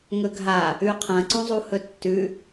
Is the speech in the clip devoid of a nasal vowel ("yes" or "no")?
no